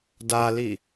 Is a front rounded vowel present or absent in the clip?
absent